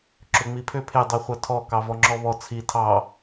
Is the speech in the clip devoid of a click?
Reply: no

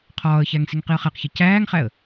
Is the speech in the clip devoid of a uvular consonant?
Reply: no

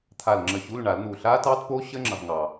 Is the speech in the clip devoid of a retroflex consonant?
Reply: no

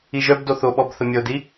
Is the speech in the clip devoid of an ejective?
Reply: yes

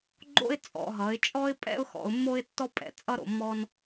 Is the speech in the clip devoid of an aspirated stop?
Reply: yes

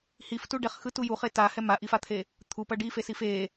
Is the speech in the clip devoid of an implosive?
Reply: yes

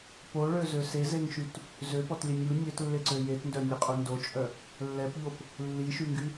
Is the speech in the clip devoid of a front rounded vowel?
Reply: no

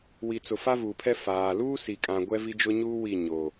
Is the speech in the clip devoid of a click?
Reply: yes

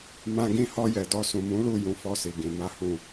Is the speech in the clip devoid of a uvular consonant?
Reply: yes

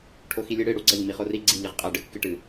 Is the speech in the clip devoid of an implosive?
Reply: yes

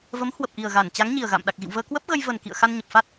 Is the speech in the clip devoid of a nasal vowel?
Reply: yes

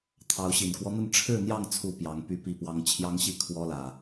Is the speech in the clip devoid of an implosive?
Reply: yes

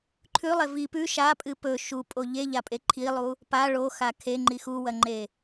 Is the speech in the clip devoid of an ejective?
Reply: no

